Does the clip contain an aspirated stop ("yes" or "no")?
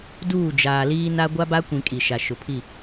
yes